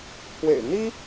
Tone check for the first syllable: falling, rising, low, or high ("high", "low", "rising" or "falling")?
low